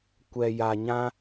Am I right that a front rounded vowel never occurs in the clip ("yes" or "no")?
yes